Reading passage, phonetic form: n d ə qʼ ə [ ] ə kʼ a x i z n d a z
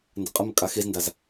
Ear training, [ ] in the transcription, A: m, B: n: A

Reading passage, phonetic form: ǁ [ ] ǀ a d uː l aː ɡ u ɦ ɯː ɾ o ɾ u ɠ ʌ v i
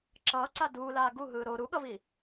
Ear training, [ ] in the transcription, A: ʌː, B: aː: A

